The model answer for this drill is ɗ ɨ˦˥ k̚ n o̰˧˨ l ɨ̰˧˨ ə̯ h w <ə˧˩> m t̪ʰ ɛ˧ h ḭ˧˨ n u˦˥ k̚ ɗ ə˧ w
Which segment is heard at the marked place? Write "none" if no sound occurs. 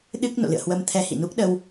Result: ə˧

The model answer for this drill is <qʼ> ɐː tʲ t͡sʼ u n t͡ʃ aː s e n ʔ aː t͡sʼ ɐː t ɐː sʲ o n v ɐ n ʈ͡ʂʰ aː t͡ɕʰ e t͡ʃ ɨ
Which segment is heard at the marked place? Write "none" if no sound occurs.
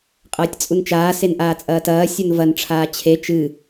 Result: qʼ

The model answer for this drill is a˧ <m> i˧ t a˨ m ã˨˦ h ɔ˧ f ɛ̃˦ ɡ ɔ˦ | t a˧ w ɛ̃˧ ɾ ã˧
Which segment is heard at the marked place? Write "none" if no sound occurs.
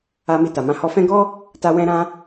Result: m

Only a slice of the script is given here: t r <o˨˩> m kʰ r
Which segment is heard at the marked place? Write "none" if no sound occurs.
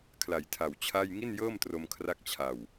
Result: o˧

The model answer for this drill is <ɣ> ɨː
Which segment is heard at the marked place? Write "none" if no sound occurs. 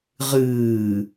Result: ʁ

